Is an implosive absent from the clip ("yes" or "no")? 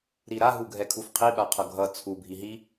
no